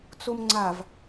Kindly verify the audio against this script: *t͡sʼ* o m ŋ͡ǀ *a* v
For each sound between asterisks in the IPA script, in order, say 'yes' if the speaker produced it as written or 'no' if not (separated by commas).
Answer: no, yes